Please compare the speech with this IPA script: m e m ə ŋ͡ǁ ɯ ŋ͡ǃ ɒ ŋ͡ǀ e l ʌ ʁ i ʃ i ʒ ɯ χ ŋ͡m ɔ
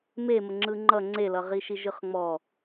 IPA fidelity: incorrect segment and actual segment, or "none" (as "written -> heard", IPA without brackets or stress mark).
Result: ɒ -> ʌ